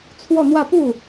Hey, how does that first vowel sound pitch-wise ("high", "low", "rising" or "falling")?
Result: falling